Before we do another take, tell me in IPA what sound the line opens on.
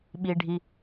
ɓ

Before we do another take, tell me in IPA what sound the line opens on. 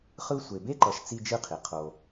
χ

